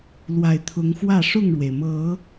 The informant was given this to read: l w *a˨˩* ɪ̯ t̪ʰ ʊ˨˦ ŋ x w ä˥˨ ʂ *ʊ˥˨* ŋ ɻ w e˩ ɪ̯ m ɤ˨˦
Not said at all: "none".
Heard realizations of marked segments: a˨˩, ʊ˥˨

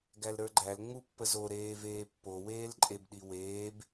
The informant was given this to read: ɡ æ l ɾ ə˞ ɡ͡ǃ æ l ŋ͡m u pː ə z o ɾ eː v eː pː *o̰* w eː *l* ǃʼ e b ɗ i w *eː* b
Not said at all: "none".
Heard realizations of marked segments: o, l, eː

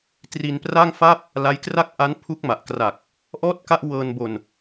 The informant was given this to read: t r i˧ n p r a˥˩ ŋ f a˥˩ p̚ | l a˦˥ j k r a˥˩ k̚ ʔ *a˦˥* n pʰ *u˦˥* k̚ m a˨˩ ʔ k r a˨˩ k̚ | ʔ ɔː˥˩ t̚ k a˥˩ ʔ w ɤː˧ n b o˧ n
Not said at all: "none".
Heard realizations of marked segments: a˦˥, u˦˥

